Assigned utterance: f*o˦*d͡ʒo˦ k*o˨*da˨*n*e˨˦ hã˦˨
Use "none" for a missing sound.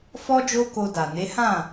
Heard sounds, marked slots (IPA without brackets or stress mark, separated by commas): ɔ˦, o˧, n